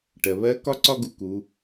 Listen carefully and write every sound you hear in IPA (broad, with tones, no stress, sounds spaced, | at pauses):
ʈ ɜ˩ β ɜ˧˥ k ɒ˥ ǀ ɒ˥ ɡ u˧ k u˩˧